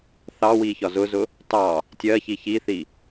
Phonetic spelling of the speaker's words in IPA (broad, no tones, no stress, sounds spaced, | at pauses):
θ ɑ w i ç ɒ z ʊ z ʊ | t ɑ | tʲ ɜ ç i ç i θ i